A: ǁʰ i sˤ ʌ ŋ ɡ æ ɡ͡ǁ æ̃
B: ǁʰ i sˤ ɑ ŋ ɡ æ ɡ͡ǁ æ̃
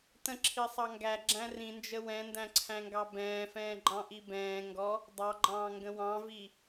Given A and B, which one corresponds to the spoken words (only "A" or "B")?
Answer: B